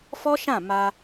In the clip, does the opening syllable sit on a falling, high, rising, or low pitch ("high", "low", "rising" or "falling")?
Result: high